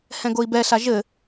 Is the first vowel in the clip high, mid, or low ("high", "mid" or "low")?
mid